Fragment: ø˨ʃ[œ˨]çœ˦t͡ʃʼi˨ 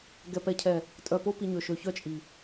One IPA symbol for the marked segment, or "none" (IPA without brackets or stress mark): ø˨